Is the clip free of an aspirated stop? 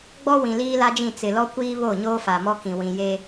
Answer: yes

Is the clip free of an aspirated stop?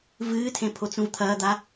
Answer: no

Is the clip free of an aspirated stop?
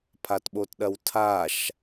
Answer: no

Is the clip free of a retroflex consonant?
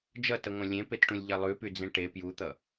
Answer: no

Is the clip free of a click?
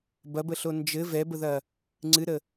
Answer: no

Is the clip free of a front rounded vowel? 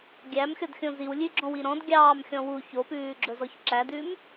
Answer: yes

